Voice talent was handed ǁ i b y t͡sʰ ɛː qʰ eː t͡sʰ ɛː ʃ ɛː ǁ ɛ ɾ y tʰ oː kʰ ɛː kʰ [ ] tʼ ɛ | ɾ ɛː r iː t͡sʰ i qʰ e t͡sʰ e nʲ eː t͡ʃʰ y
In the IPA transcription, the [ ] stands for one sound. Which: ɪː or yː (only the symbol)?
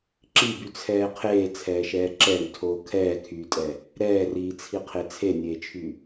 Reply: yː